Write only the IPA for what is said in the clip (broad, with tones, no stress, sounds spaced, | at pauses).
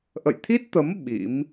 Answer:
ʔ ə̰˧˨ j t̪ʰ i˦˥ t̚ t̪ ə˨˦ m ɓ ḭ˧˥ m